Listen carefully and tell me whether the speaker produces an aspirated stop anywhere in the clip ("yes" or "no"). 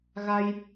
no